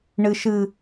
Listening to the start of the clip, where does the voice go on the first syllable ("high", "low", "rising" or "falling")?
high